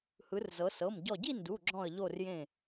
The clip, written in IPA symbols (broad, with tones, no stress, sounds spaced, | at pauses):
h ɯ˩˧ r z ɤ˩˧ s ɤ˩˧˩ m ɟ ɔ˧˩ ɟ i˥˧ n d u˩˧˩ ɡ͡ǁ ɔ̃˧˩ ə̯ ʎ o˧˩ r j ẽ˧˩